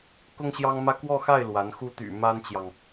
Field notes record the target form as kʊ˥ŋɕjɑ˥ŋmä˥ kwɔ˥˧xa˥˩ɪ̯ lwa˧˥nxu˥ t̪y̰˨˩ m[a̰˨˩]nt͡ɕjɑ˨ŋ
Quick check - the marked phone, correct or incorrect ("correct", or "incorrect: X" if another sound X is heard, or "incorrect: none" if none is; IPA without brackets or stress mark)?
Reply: incorrect: a˥